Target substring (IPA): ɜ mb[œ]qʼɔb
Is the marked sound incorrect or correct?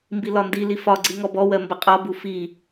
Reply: incorrect